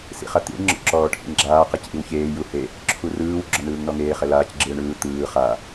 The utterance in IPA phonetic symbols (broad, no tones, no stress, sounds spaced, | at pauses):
s ḭ χ a t̪ ḭ ɳ ŋ͡ǁ ɔ̰ ǁ ɔː ʈʰ ḭ ŋ ɡ͡ǁ aː q ɛ c ʔ i w ç eː j u h e | ǁʰ u r ɯː w ɡ͡ǁ ɔ n ɯː ŋ n ɔ ŋ eː χ ɛ l aː c ɡ͡ǁ ɯː ɳ ɯː t̪ ɯː χ a